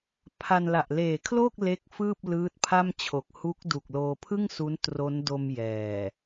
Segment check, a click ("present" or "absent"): absent